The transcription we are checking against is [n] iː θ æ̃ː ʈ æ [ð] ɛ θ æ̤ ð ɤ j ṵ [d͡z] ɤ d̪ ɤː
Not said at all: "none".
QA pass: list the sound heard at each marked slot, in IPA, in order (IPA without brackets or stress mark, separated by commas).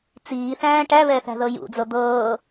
t͡s, β, d͡z